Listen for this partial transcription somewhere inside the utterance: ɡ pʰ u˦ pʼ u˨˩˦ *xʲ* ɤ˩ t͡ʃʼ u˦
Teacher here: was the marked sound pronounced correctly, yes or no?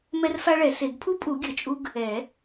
no